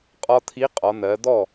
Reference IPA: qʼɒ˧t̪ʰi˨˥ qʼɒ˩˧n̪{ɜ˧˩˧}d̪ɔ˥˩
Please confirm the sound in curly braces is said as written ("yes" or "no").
no